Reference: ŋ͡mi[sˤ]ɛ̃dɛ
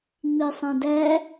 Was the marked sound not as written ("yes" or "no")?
no